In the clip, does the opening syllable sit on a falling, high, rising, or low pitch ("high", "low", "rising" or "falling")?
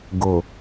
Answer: low